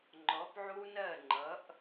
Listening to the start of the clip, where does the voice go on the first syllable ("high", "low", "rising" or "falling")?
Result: rising